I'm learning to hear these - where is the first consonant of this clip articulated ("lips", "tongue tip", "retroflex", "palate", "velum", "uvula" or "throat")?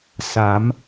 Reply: tongue tip